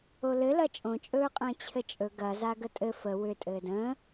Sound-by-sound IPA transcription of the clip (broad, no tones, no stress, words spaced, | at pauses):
olɘ lɐt͡ʃʼõt͡ʃʼɵːqʼə̃ː t͡ɕʰɘt͡ʃʼɵ ɡɐza ɡətʼɘ fə wʏ tʼɘːdə̃ː